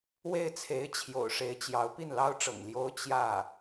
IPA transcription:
we˥˩ɪ̯t͡sʰe˧˥ɪ̯ t͡ɕʰjo̰˨˩ʊ̯ʂe˧˥ɪ̯t͡ɕjɑ˧˥ʊ̯ pi˥˩nlɑ˥ʊ̯ʈ͡ʂɤ̰˨˩ŋ ljo˥ʊ̯ t͡ɕjä˥˩

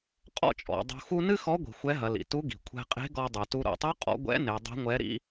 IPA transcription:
qʼɔ̰˥t͡ʃʼɔ̰˩˧ dˤṳ˧ xu˥ nɨ˥xɔ˧˥ɡʷi̤˩ xʷɛ˧˥ɦɐ˩˧lḭ˩ tu˧˥ɡi̤˩ kʷʰɛ̤˧qʼe̤˧˥ɡɔ˧ dˤu˩tu˧ ɾo̰˩tˤu˧˥ qʼɔ̰˧˥ ɡʷɛ̰˧˥ ne˩˧dˤɛ̤˧˥ŋʷɛ˧˥ ɾḭ˥

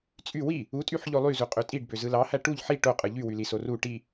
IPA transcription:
t͡sʼy wi | utʼyħʎo lˠyzuqʼø tʼiɖbøzɯ lɑhæ ʈuʎ ħi ʈoqʼɯ ʎywyliso ru ʈi

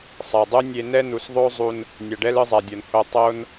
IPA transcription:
sˤa˨dˤu˦ nʲe˧nɛ˦ nu˨sðˤo˦zˤu˧n | nʲa˨ɖɛ˦lɯ˧zˤa˨ dʲʌ˨nho˧ tˤo˦n

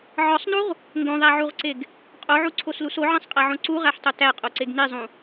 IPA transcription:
ʕɒsˤnuʁ | ŋɡõðˤæʕuʁǀeɡ | qʼoʕuǀʰoslus oʕẽsˤqʼæʕõ ǀuʁæħtˤo tæqʼoǀeɡ nizˤũ

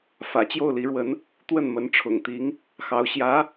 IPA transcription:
fä̰˨˩t͡ɕjo˥˩ʊ̯li˧˥ɻwə˧˥n | t̪wə˥˩nmə˧˥nʈ͡ʂʰʊ̰˨˩ŋt̪i˧˥ŋ | xɑ˧˥ʊ̯ ɕjä˧˥

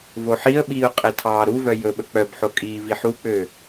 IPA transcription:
voħiə̯ɓiːʊ̯ qʼɛtʰɑːɾuvœ jɵɓɵ k͡pœbħo kʼiːviħuk͡pøː

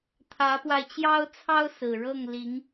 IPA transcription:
t̪ʰä˧˥pwa˧ɪ̯ t͡ɕjɑ˥ʊ̯t͡sʰɑ˥ʊ̯ sɹ̩˨˩ɻɤ˥˩ŋli˧˥ŋ

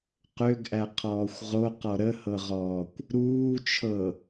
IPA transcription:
qøɡʔæqʰɔːxʷ ʁoqɔ ɾəhɤʁɔːkʷ | ɾuːt͡ʃʰɤ

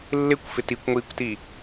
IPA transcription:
lːɪkʷfɪ tikʷŋʷiːkʷti

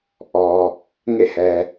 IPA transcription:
ʔɔ˨ | ŋḛ˦˨hɛ˨

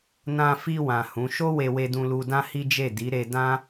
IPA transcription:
nã˧ fi˧wã˨ hũ˨˦ ʃo˦we˧ we˧dũ˧lu˧ dã˦hi˦d͡ʒe˦˨ di˨˦ɾe˧dã˦

